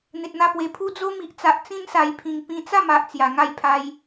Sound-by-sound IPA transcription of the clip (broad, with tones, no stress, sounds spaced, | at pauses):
n̪ e˨ t̚ n̪ a˧ p w e˨˩ pʰ u˦ d͡z o˦ m i˨ ʔ t͡s a˨ ʔ t͡s ĩ˦ n s a˨˩ j pʰ ĩ˨˩ ŋ p ĩ˧ t͡s a˥˧ m a˨ ʔ t͡s j a˨˩ ŋ a˥˧ j pʰ a˧ j